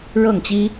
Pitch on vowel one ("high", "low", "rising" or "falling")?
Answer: falling